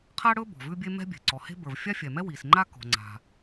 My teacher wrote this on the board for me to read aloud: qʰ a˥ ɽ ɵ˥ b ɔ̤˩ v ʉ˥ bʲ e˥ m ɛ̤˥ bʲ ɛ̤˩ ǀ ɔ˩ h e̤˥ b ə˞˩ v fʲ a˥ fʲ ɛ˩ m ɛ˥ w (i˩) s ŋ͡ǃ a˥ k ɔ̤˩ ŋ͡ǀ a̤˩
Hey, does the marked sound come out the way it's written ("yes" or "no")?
yes